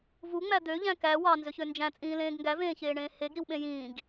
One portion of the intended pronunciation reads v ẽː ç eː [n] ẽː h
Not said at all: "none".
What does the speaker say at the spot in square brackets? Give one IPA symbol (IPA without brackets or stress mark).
ɳ